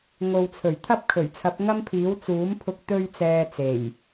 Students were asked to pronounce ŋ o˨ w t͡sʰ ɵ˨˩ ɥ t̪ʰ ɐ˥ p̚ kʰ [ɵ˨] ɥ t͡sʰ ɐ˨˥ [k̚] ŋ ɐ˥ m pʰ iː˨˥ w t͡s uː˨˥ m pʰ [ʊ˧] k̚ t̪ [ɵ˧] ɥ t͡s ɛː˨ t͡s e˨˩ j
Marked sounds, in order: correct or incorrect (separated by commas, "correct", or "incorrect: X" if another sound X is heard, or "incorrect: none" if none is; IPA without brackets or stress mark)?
incorrect: ɵ˨˩, incorrect: p̚, correct, correct